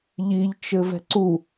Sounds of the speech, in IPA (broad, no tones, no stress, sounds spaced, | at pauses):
ʎ i ʎ t͡ʃ ɘ v ɛ̤ ǀ u